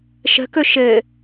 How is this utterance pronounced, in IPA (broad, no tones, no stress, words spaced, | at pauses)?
ʃə̤kɵ ʃɘ